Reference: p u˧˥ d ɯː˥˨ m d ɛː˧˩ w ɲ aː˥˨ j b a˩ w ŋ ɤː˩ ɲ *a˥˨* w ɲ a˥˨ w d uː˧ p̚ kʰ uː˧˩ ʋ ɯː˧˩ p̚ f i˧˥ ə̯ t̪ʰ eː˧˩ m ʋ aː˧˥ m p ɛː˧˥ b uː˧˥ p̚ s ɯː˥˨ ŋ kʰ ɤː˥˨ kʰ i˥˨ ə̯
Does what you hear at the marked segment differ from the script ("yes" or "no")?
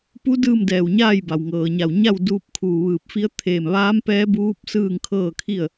yes